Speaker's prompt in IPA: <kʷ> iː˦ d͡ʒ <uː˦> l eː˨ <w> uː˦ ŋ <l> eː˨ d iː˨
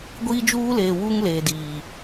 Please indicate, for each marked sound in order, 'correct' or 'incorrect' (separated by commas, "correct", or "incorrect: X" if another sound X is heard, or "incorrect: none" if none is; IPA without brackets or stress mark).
incorrect: ɡʷ, correct, correct, correct